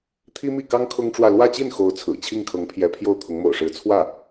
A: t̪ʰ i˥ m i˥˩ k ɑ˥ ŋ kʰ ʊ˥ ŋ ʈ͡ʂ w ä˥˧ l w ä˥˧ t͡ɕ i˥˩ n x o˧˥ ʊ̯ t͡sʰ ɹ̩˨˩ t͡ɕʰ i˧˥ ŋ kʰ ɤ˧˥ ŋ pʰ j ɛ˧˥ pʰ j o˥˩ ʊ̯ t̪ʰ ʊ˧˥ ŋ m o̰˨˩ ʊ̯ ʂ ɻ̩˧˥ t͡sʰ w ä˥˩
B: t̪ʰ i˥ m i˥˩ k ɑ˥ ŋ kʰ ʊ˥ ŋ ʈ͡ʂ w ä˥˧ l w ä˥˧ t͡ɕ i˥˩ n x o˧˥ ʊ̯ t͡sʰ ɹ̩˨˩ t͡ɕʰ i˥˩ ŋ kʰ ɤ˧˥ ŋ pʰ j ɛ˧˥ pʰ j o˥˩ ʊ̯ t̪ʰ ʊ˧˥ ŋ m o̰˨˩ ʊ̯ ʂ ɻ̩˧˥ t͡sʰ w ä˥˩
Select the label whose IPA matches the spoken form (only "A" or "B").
B